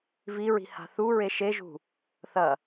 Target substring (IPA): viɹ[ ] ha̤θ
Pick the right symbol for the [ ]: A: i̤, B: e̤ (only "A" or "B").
A